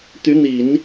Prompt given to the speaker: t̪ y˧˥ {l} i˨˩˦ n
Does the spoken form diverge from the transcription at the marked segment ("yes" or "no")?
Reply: yes